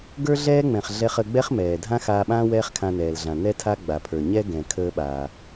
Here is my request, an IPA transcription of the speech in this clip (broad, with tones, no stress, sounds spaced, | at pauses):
ɡ ə˞˥ ɮ ɛː˥ ŋ͡m ɛ̃˩ χ ɮ ɛ˧ χ ə˧ ɡ͡b ɛ˥ χ m ɛː˩ dʱ ã˥ x aː˧ ɓ ãː˥ w ɛː˥ χ kʰ ã˧ n ɛː˩ l ɮ ã˩ n ɛ˥ tʰ a˥ ɡ͡b a˩ pʰ ə˞˩ ɲ ɛ˥ ɡ ɛ̃˩ kʰ əː˧ ɓ aː˩